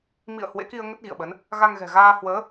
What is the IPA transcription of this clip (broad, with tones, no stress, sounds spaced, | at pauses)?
m ḭ˧˨ ə̯ h w ḛ˧˥ k i˧ ə̯ ŋ ə˦˥ t̚ ɣ ḭ˧˨ ə̯ ɓ ə˨˦ n | ɣ a˧ ŋ ɣ ɛ̤˨˩ ɣ aː˧ h w əː˨˦